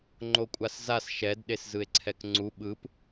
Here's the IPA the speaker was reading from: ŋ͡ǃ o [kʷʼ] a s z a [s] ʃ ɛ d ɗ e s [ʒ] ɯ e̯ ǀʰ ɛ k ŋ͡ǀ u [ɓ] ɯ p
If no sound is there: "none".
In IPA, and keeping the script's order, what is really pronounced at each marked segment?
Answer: kʷʼ, s, z, ɓ

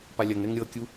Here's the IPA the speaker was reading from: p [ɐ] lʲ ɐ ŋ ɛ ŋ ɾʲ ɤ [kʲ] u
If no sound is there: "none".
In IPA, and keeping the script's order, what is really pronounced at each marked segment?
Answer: a, kʲ

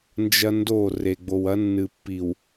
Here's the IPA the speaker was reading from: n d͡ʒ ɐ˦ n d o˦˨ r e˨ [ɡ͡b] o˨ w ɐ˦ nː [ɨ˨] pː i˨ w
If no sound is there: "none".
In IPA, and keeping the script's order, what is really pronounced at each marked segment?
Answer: ɡ͡b, ɨ˨

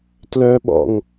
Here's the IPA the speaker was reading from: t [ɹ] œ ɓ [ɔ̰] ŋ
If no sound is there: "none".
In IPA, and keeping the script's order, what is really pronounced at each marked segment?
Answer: l, ɔ̰

